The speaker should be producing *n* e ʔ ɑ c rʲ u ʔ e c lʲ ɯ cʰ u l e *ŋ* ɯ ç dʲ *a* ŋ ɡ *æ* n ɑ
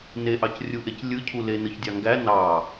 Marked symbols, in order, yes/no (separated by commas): yes, no, no, yes